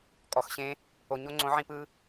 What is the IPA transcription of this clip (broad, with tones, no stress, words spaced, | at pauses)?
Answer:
kʼɔ˨xɕẽ˦ | o˨ɲo˦ŋ͡ǀõ˨˦ʕĩ˧ pɯ˧